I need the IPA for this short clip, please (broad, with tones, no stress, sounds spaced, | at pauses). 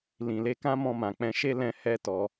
l ĩ˨ l e˧ k ã˦ m ɔ̃˧ m ã˨ k͡p ɛ̃˧ ʃ e˦ l ɛ̃˧ h ɛ˦ t ɔ˧